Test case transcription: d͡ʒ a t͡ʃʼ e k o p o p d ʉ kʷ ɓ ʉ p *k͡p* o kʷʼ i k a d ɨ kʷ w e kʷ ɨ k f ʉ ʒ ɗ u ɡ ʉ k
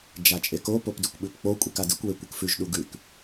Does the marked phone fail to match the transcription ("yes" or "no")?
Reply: no